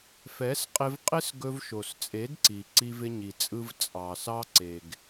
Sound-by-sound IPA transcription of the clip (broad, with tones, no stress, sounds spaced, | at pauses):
f ɛ˨˦ s qʼ ɪ˧ v qʼ ɪ˦ s ɡ ɵ˧ v ʃ o˨ s t͡sʼ e˨˦ d ǀ i˨ ǀ i˧ v ɪ˧ ɲ i˨ t͡sʼ ɯ˧ v t͡sʼ ɑ˨ s ɑ˦ ǀ e˨ ɡ